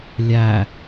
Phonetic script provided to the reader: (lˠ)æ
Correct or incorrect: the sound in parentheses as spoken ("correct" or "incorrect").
incorrect